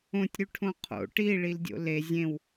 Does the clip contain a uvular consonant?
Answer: yes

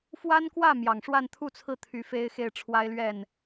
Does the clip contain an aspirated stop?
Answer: yes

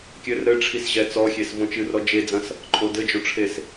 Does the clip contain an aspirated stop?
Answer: yes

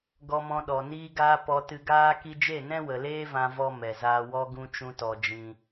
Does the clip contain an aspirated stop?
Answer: no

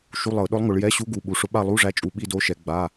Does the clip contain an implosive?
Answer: yes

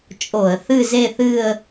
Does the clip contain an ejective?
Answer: yes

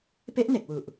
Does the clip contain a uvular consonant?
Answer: no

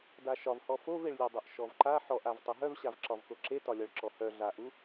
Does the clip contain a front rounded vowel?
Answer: yes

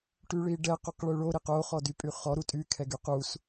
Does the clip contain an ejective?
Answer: yes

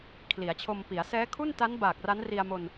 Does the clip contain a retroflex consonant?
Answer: no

